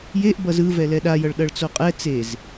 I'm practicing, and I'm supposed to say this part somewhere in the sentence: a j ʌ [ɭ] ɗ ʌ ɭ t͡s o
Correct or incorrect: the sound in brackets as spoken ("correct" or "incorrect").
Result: correct